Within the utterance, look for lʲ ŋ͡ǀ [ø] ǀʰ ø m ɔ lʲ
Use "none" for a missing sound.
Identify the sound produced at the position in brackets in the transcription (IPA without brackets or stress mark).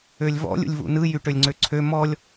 ø